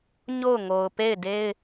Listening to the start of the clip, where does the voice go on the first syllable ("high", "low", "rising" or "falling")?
falling